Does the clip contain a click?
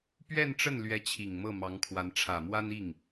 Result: no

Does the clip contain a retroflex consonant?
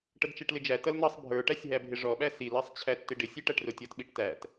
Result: yes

